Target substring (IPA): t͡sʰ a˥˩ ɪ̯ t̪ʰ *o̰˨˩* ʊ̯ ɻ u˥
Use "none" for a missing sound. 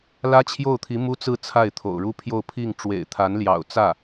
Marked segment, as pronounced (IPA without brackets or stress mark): o̰˨˩